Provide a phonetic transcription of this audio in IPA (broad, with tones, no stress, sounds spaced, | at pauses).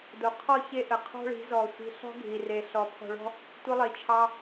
d o˨ qʰ ɔ˦˨ ç e˦ ʔ ə˨ qʰ ɔ̤˦ ɭ i̤˨˦ z ɔ˨ sʷ i̤˨ ɬ ɔ̤˦ ɡʱ i˨ r e˨ ɬ ɔ˨ pʰ ɔ̤˨ ɭ ɔ̤˦ | tʷ ə˦ lˠ i˨ t͡ʃʰ ɑ˦